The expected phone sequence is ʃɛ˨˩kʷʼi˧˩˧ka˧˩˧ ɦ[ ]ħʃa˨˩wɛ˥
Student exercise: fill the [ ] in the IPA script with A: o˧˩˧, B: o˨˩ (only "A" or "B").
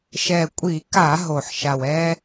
B